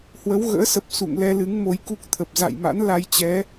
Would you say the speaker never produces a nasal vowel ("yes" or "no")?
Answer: yes